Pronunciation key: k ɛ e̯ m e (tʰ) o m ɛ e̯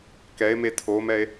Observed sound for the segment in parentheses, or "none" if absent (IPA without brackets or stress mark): tʰ